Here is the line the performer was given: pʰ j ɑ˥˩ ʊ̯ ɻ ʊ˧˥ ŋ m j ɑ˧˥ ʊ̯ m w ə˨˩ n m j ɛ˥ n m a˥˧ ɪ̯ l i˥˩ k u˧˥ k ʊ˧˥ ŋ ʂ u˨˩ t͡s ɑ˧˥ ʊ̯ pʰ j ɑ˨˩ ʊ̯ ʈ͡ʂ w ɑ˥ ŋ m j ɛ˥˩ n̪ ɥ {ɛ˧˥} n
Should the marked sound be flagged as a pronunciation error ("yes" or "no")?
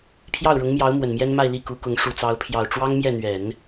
yes